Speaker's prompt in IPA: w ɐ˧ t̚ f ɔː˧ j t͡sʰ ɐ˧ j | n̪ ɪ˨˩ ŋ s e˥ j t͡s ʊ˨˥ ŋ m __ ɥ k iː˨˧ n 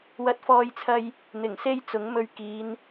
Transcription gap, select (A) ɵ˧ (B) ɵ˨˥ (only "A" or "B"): A